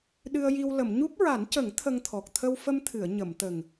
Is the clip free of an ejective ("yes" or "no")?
yes